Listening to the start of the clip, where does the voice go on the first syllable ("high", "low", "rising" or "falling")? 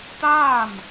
falling